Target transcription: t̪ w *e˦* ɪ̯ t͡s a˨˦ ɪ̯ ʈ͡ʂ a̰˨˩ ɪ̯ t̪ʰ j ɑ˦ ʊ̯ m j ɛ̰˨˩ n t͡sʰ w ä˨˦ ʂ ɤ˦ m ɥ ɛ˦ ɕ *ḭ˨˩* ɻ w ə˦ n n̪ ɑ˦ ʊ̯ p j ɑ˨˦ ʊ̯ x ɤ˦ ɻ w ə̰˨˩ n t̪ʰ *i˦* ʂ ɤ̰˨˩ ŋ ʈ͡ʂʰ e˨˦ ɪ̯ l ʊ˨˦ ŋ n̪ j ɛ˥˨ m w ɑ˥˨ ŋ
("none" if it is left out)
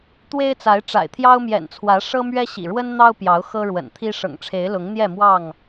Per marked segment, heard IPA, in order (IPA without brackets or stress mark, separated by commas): e˦, ḭ˨˩, i˦